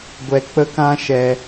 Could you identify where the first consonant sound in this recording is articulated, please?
velar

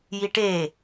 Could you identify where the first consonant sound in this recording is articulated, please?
palatal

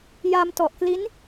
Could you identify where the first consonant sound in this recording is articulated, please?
palatal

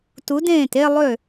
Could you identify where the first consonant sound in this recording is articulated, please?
alveolar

